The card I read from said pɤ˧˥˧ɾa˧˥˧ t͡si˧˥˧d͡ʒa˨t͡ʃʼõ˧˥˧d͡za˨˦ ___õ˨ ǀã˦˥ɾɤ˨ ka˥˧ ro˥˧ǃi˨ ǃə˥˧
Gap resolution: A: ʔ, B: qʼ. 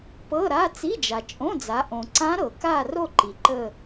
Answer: A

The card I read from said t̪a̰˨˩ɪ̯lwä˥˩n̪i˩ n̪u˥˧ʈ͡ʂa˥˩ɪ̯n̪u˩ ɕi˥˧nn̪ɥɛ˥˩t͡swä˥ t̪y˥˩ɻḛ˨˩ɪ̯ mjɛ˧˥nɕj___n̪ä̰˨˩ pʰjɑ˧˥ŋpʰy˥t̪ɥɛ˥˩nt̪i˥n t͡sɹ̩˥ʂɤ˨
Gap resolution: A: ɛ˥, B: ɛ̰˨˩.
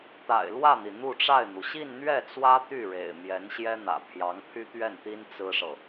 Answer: A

